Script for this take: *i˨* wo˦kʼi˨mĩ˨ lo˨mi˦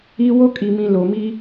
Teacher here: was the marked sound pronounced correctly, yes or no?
no